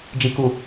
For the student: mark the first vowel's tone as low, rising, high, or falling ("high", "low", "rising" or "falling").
low